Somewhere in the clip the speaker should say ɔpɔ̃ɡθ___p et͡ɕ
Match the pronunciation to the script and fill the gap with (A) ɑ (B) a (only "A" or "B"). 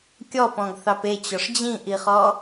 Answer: A